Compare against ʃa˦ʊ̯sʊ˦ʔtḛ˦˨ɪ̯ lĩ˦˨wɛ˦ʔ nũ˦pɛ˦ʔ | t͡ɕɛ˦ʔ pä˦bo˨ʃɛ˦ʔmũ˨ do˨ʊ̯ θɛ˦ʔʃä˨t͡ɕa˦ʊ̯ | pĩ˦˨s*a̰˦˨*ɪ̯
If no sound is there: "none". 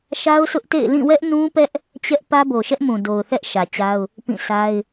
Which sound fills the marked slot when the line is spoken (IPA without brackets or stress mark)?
a˦